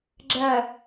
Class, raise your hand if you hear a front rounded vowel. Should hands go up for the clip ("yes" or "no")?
no